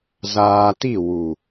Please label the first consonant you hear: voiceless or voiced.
voiced